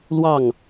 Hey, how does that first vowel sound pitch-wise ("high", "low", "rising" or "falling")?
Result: falling